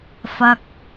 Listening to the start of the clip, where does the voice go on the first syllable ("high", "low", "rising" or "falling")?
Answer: low